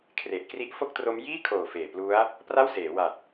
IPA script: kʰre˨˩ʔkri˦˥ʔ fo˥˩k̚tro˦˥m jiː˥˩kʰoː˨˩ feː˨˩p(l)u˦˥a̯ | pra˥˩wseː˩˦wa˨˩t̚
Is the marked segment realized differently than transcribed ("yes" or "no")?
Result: no